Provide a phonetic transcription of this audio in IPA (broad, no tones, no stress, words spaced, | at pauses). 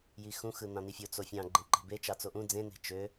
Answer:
jixũ xɯnɑ̃nifʲo t͡sofʲɑ̃ ɡ͡ǃẽǃe̤be t͡ʃɑt͡soʔũ d͡zẽ ne̤t͡ʃø